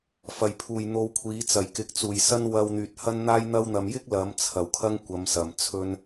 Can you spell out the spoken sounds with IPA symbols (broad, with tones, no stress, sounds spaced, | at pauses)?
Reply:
f ɐ˨˩ j pʰ uː˨˩ j n̪ o˨ w kʷʰ iː˨˥ t͡s ɐ˨˩ j k ɪ˨ k̚ t͡s uː˨˩ j s ɐ˥ n w ɐ˧ w n̪ yː˨ t̚ h ɐ˥ n n̪ aː˥ j n̪ ɐ˥ w n̪ ɐ˧ m j ɪ˥ k̚ l ɐ˨˥ m t͡sʰ ɐ˨˩ w kʰ ɐ˥ ŋ kʷ ɐ˨˧ m s ɐ˨˩ m t͡sʰ ɵ˧ n